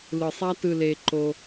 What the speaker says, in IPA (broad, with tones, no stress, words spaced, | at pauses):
lɯ˨sˤa˦ tɯ˨le˨ ǃo˦